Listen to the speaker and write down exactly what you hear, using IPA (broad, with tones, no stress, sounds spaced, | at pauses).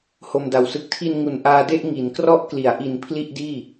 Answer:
h o˧ m d a˨˩ w s ɯ˦˥ k̚ tʰ i˧ n ŋ u˩˦ n ʔ aː˧ d e˥˩ ʔ ŋ i˩˦ n k r ɔ˦˥ ʔ k l i˩˦ a̯ ʔ i˨˩ n pʰ l i˥˩ ʔ d iː˥˩